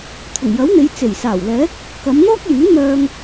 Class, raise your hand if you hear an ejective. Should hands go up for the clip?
no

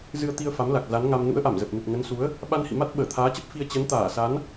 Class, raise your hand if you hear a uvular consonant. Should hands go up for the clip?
no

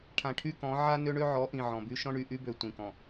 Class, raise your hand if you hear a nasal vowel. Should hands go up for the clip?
yes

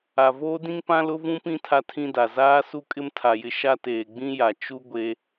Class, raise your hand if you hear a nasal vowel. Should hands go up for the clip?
yes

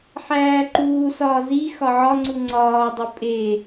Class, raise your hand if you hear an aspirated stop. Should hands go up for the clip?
no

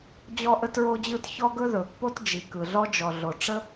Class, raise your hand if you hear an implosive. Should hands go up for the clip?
no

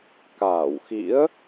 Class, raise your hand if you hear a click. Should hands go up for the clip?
no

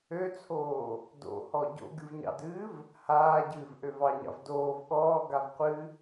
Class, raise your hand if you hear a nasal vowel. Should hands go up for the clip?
no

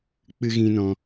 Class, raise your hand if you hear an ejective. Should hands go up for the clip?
no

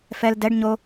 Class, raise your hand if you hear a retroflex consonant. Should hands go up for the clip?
yes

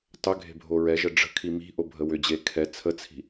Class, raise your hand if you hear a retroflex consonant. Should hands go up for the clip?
yes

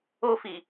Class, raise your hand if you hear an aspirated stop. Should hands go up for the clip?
no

